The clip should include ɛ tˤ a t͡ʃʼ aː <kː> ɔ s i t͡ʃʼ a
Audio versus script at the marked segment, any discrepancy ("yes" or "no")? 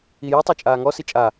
yes